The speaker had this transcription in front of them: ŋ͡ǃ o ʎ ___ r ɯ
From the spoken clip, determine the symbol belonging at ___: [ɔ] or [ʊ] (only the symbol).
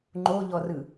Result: ɔ